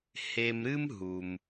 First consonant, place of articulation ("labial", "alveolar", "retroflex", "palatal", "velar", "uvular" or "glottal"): glottal